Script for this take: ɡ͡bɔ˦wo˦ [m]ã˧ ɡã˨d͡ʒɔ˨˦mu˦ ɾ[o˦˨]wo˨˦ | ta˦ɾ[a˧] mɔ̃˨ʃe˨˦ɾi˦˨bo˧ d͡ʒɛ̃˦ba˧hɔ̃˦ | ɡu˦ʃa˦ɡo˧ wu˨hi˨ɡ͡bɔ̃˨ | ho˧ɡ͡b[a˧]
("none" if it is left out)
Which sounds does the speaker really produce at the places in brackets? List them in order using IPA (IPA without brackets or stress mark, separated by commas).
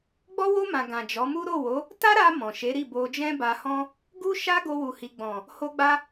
m, o˦˨, a˧, a˧